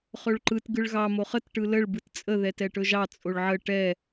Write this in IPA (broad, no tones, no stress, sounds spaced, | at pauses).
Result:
χ ɵ ɭ ǃ ɯ t ɡ ɯ ɭ ɣ ɑ m o χ ə t ʈ ɯ l ə ɭ b ɯ t t͡sʼ ə ð ɛ t ɛ ʈ ɵ ʒ ɑ t͡sʼ o ɭ ʕ ə ʈ ɛ